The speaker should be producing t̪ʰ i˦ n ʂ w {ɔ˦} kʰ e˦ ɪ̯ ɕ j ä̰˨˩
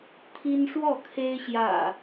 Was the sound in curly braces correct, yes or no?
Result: no